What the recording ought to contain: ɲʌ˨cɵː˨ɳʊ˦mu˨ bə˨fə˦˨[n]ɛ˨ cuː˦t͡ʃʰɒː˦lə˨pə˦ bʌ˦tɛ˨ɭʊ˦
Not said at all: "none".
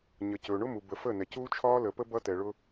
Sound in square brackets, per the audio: n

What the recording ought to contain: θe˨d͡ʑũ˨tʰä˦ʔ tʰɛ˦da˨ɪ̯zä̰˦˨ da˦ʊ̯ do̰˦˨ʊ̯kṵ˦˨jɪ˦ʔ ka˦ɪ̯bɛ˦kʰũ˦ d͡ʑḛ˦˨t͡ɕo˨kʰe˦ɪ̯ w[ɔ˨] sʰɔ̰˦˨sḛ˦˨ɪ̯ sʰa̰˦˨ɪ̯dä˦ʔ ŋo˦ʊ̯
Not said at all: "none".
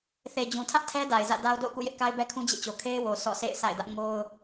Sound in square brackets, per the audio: o˨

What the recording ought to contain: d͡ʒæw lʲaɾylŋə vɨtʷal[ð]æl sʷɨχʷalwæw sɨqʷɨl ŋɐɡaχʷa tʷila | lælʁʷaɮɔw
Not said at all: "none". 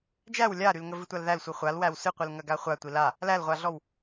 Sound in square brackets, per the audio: ð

